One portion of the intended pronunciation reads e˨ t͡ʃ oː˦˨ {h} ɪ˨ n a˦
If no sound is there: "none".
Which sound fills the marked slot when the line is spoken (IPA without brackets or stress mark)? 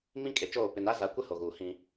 p